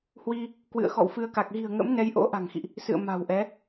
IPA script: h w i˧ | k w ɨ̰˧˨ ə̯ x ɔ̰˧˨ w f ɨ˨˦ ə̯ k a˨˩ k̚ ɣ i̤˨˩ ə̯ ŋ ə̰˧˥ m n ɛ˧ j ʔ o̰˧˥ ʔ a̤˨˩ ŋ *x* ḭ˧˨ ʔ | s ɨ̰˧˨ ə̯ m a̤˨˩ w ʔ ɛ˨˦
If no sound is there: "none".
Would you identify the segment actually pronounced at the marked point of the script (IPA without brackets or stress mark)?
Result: x